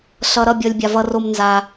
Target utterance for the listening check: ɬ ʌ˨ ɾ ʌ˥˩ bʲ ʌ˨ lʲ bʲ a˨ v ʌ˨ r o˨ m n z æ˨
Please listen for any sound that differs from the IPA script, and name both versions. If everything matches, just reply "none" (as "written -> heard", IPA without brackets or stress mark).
æ˨ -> a˨